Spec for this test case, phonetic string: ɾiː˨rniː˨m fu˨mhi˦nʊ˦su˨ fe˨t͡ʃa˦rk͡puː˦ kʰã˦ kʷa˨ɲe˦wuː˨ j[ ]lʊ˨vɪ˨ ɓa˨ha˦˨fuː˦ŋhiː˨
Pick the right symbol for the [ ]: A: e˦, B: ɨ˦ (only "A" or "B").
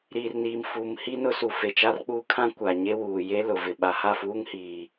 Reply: A